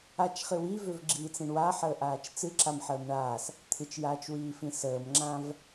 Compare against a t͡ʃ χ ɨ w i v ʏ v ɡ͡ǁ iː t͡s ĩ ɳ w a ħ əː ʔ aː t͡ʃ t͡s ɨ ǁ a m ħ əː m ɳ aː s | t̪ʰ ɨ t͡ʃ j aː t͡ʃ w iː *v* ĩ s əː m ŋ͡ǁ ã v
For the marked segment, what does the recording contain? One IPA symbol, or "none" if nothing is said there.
f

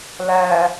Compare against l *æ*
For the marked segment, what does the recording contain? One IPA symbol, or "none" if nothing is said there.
æ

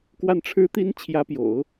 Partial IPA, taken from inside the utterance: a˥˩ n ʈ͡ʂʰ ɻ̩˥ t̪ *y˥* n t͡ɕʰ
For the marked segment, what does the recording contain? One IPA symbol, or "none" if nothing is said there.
i˥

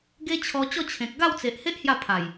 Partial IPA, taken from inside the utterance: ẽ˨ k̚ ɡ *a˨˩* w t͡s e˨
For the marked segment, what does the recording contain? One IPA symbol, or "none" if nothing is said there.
a˥˧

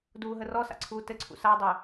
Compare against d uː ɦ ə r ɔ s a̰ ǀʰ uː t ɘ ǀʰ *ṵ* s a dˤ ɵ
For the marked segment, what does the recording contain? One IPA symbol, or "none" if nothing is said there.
ṵ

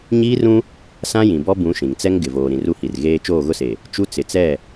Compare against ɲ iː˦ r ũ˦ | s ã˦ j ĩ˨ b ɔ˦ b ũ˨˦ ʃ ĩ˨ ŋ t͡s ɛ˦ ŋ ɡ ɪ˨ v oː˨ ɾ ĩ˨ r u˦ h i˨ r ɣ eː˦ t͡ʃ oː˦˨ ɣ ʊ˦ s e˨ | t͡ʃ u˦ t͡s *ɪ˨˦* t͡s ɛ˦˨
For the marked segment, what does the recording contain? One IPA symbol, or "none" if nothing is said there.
ɪ˨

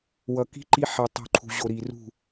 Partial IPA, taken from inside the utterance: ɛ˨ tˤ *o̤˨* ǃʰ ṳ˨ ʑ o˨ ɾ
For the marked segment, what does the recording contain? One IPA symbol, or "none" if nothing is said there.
ṳ˨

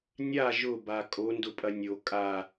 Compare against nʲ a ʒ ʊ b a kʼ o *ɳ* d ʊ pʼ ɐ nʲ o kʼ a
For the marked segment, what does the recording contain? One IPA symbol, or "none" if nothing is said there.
n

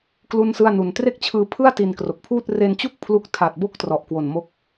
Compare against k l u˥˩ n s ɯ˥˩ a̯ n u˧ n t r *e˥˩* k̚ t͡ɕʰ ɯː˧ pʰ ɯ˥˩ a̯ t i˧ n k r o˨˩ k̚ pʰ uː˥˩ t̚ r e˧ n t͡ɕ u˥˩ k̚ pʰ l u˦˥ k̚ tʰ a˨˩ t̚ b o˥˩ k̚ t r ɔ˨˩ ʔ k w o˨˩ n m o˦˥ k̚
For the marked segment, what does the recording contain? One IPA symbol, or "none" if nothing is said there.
e˥˩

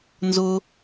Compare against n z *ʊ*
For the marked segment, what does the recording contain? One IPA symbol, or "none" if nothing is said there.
ʊ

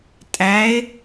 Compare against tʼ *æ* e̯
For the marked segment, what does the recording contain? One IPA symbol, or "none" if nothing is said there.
æ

